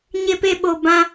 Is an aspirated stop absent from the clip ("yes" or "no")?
yes